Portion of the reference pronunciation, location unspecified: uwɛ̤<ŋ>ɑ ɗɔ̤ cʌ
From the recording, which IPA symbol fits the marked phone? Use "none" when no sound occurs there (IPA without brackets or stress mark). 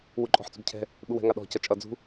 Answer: ŋ